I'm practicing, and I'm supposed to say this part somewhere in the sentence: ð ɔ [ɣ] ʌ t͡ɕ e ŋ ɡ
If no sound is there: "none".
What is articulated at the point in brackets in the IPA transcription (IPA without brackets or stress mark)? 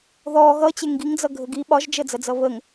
ɣ